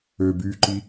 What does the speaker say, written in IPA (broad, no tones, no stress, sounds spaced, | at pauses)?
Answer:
ø b yː ǃ i